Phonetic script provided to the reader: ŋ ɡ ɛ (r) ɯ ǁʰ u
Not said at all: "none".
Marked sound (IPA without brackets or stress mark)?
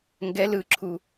l